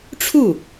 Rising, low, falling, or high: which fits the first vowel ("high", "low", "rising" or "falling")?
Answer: falling